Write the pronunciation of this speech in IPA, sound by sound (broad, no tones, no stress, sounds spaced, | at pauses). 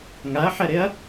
ŋ a ɐ̯ ħ ɛ ɾ e ɐ̯